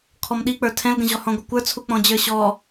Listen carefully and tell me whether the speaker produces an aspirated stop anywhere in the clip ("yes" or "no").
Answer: yes